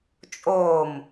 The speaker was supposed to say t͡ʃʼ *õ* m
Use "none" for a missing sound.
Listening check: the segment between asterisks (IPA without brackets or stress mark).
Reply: o